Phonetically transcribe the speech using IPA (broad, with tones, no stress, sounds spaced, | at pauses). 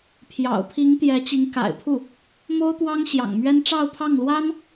pʰ j ɑ̰˨˩ ʊ̯ pʰ i˧˥ ŋ t̪ j ɛ˧˥ t͡ɕ i˧˥ ŋ k a̰˨˩ ɪ̯ pʰ u˥˩ | m o˥ ʊ̯ t̪ w ɑ˥ ŋ ɕ j ɑ̰˨˩ ŋ m ɥ ɛ˥ n ʈ͡ʂ ɑ˥˧ ʊ̯ pʰ ɑ˥˩ ŋ l w a˥ n